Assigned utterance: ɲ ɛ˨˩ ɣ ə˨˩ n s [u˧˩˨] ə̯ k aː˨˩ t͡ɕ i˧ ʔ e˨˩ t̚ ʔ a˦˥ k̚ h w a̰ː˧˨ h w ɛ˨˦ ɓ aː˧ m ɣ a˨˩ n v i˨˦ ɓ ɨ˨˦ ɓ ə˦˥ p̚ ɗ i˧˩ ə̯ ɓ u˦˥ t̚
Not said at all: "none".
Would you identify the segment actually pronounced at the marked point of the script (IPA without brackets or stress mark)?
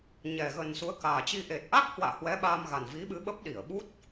u˨˦